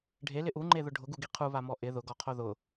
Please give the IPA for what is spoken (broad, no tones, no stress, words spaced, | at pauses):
ɖʱelɪ ʔuŋ͡ǃeðʊ ɖʱʊɡuɡi qʰuβamɔ ʔɪ ðʊɡɔqʰo ðʊ